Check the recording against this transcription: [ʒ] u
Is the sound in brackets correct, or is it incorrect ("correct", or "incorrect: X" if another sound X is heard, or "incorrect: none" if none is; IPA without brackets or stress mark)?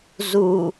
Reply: incorrect: z